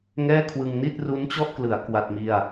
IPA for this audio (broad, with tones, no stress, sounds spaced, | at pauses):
ŋ ɛː˥˩ kʰ w ɯ˧ ŋ n i˥˩ t̚ r u˦˥ n t͡ɕ ɔ˥˩ ʔ k l ɯ˩˦ a̯ k w a˥˩ t̚ m i˥˩ a̯